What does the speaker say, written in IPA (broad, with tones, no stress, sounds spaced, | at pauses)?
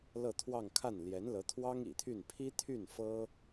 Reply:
l ɤ˥˧ t̪ʰ w ɑ˥˧ ŋ kʰ a˥˩ n l j ɛ˧˥ n l ɤ˧˥ t̪ʰ w ɑ˥ ŋ ḭ˨˩ t̪ʰ y˥˩ n pʰ i˥ t̪ʰ y˥˩ n f ɤ˥